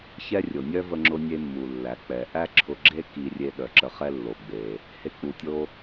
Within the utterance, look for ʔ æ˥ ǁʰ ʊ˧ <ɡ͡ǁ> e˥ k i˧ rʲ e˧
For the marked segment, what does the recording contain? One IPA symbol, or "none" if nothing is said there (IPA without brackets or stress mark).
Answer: ɡ͡ǁ